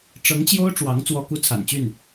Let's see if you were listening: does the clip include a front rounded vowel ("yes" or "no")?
yes